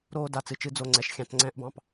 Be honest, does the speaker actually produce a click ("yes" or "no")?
yes